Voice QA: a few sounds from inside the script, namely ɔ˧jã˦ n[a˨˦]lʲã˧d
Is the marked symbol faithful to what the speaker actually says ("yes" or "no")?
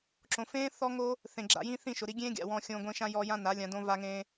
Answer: yes